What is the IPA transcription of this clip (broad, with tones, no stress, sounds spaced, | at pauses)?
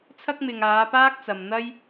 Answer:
t͡sʰ ɐ˥ k̚ m ɪ˨ ŋ aː˨˧ p aː˥ k̚ t͡s ɐ˨ m n̪ ɐ˥ j